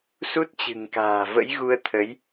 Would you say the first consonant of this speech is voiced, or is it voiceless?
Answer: voiceless